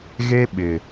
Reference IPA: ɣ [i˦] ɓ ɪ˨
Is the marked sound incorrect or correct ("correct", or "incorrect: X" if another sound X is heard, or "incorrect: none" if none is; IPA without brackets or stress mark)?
incorrect: e˦